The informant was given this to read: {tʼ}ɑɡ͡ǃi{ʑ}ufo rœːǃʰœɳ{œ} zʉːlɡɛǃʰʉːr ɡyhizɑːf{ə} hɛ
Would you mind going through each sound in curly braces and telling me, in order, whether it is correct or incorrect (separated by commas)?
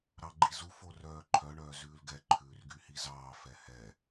incorrect, incorrect, incorrect, incorrect